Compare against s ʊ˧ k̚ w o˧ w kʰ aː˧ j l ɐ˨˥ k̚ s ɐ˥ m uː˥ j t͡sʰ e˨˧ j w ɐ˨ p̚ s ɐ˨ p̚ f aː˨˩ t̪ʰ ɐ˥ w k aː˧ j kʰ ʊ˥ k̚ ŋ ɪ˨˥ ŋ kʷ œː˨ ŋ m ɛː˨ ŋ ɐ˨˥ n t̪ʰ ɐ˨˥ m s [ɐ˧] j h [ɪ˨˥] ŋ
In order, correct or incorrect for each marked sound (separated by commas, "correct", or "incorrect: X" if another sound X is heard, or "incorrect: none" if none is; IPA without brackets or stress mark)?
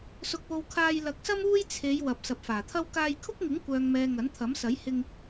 incorrect: ɐ˨˥, incorrect: ɪ˧